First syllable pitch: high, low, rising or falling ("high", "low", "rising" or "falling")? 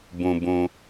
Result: low